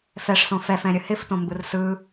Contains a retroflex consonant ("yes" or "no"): yes